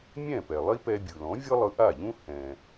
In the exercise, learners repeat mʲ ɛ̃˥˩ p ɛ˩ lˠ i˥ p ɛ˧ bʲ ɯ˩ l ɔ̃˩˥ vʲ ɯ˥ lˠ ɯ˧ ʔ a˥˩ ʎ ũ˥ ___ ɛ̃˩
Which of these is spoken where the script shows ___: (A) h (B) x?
A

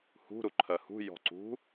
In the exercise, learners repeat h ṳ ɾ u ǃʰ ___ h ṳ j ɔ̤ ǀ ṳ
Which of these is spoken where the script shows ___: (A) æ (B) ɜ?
B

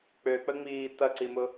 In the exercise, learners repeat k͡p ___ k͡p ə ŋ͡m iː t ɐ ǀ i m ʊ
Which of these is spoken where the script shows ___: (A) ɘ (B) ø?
B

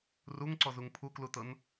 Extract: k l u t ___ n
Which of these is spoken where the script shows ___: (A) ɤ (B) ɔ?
A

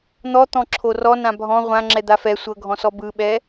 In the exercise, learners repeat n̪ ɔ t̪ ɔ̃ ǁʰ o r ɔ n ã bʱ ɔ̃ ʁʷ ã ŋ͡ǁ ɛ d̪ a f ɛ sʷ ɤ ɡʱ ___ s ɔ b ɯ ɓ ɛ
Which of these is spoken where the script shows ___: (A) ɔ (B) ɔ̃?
B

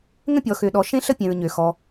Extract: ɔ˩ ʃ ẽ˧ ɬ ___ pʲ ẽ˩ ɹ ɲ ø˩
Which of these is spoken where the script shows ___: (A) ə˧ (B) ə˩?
A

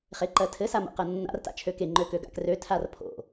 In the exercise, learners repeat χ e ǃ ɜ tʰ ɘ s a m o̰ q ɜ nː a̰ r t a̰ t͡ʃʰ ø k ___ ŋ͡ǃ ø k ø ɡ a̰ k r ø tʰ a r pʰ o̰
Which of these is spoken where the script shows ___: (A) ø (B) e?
B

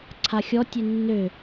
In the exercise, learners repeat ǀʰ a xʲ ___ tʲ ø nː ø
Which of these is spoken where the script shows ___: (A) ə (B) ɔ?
B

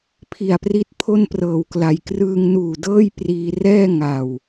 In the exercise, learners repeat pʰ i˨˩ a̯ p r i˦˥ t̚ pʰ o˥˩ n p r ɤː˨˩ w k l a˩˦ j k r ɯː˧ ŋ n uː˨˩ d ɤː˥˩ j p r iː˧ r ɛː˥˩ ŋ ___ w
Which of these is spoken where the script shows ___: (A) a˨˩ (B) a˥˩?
A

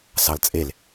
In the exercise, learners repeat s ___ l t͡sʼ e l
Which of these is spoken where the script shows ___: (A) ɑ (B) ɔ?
A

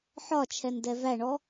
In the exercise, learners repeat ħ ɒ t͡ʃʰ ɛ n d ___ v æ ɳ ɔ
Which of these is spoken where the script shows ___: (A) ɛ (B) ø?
A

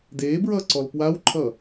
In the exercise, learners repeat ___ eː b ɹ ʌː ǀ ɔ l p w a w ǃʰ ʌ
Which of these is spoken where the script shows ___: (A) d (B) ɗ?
A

